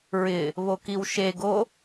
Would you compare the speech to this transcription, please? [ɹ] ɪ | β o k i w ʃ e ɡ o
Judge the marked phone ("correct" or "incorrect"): correct